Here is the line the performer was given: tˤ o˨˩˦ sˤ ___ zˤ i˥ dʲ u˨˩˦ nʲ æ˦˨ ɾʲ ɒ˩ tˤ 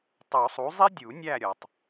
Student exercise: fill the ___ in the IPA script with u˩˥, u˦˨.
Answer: u˩˥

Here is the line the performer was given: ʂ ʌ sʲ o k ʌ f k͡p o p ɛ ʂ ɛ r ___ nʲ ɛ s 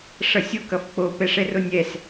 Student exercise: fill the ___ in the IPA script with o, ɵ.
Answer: o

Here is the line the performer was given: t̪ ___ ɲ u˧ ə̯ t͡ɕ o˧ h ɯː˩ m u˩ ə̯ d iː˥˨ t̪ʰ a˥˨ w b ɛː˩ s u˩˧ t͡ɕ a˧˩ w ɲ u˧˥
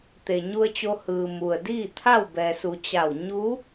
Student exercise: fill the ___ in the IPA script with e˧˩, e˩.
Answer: e˩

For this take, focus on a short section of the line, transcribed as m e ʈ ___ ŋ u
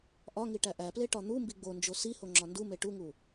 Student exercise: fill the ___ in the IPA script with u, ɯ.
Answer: u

